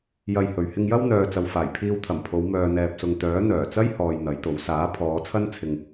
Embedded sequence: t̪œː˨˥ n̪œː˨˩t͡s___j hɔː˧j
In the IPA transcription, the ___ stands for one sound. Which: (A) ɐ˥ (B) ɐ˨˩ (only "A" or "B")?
A